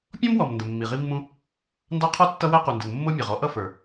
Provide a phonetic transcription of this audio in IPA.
pʲ ɔ̃˥ m w ɔ˨ m n d ə˨ mː i˨ ʁ i˥ mː ũ˥ | n d ɑ˥ qʰ ɔ˥ tː ʌ˥ w æ˥ q u˨ n d ə˨ n mː ʊ˥ mʲ ɑ˨ ʁ ɔ˥ ʔ ʌ˥ f ə˞˨

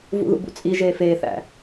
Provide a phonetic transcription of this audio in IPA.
v ṵ ð ṵ b ṵ t͡sʼ i ʒ eː f eː θ æ̰

